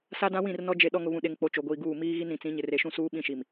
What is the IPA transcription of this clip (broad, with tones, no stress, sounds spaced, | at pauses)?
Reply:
s a˦ d ã˦ w ĩ˦˨ r n ɔ˦ d͡ʒ e˦ ɗ ɔ˦ ŋ ʊ˨ β ũ˨ ɗ e˨ ŋ k͡p o˨ t͡ʃ o˨ ɡʷ iː˨ ɡ uː˦˨ m iː˦ ɣ i˦ n ɾ ĩ˨ t͡s ĩ˨˦ ɲ ɪ˨ r e˨ ʃ ũ˦ s uː˦ ɓ ĩ˦˨ ʃ i˨ m